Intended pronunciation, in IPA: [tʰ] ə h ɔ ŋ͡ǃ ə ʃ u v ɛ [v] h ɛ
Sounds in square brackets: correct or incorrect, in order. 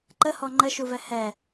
incorrect: ǃ, incorrect: none

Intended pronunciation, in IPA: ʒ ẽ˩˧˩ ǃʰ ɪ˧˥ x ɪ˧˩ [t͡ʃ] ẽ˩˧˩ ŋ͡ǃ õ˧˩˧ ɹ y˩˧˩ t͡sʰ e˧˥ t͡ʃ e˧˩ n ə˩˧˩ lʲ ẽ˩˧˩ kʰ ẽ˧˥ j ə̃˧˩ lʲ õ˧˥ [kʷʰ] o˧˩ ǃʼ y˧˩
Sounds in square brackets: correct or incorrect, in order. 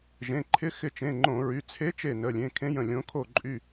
correct, incorrect: kʰ

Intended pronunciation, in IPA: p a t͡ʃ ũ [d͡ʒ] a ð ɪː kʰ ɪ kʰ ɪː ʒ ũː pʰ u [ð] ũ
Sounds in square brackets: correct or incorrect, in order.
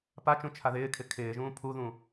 incorrect: t͡ʃʰ, correct

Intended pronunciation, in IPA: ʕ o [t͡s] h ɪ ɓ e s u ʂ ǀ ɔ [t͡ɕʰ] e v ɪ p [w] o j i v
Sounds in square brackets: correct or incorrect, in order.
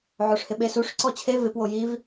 incorrect: ʂ, correct, correct

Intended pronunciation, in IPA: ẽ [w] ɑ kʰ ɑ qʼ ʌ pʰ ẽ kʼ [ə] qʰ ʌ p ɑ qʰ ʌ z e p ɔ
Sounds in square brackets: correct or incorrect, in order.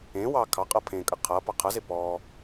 correct, correct

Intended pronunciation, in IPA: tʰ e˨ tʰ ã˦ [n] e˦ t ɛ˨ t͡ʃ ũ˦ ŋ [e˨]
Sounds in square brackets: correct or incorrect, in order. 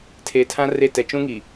incorrect: r, incorrect: i˨

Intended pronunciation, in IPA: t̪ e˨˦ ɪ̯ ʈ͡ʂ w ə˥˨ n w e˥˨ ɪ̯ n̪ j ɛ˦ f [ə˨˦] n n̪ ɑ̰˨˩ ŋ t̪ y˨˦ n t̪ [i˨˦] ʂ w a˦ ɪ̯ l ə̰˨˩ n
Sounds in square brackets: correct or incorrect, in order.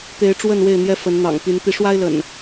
correct, correct

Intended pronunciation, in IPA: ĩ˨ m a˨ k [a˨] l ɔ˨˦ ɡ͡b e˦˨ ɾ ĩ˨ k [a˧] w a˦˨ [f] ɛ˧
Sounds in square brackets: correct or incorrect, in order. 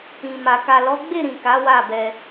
correct, incorrect: a˨˦, incorrect: b

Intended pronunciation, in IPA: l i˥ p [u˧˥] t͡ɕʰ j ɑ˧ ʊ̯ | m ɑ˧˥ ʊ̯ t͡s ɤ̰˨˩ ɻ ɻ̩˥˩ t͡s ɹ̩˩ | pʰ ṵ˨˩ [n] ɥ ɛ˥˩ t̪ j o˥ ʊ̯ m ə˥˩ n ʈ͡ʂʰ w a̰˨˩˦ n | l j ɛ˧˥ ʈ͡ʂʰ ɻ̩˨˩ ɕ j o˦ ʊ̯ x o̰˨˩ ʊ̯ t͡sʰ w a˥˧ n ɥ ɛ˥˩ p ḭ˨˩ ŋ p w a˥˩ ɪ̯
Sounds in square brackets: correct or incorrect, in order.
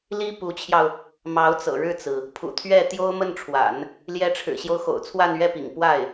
correct, incorrect: t̪ʰ

